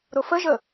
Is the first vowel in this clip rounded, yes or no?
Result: yes